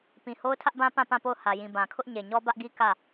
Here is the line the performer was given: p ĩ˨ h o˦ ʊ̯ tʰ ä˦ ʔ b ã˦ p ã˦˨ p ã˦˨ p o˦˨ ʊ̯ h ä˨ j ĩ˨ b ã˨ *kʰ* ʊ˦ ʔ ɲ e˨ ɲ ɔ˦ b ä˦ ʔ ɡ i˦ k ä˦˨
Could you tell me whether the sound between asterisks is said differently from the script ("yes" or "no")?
no